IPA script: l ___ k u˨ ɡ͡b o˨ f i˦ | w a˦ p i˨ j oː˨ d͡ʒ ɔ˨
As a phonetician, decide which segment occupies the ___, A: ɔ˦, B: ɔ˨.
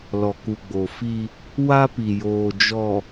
B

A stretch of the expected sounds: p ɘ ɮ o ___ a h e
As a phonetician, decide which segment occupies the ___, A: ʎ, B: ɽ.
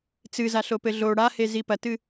B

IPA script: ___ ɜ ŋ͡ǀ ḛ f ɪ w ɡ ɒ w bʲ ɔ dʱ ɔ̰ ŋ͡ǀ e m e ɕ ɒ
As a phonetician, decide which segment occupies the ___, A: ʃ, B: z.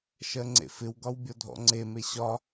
A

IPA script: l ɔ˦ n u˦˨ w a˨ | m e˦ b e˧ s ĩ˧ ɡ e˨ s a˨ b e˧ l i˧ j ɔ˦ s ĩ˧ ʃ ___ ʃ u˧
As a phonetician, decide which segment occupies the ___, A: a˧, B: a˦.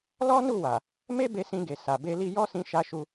A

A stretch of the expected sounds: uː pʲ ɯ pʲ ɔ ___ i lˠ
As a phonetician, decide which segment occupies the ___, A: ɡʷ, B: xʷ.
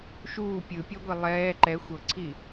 A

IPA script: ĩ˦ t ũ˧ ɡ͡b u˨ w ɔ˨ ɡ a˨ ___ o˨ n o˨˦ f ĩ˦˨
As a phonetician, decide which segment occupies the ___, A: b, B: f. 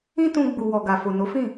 B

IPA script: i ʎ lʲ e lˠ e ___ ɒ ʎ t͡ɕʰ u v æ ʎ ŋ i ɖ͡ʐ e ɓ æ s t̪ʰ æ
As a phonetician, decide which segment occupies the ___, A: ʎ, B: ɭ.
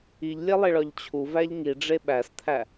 B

